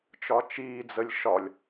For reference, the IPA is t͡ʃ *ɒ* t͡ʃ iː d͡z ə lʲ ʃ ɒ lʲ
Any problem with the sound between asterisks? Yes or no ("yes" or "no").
no